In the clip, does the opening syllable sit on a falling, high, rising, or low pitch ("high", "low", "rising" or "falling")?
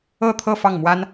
falling